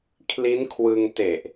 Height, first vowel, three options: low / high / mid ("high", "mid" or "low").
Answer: high